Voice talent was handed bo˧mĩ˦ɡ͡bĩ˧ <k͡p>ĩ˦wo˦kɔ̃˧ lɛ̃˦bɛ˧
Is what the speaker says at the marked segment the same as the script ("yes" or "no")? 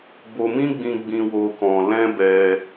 no